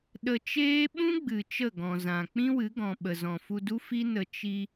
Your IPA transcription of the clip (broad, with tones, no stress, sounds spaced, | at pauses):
ɗ ə˧ t͡ʃ eː˦ ɓ ũ˦ ɡ͡b ɨ˨ t͡ʃ ə˦˨ ɡ ɔ̃˨ z ã˨ k͡p ĩ˦ w ɨ˨˦ ɡ ɔ̃˨ ɓ ə˨ z ɔ̃˨ f u˧ d u˦ f i˦ n ə˧ t͡ʃ i˧